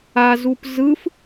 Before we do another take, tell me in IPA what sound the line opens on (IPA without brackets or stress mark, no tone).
a